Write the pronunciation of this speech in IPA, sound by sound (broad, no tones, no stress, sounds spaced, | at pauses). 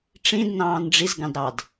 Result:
ʈ͡ʂ ĩ d n ɑ̃ː n ɖ͡ʐ i z ɡ ɑ̃ d ɾ ɑ d